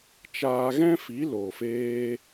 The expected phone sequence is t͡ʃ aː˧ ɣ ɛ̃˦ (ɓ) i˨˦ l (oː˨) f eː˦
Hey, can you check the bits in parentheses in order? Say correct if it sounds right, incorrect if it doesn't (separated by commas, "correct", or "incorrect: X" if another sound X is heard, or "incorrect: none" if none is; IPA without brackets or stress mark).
incorrect: f, correct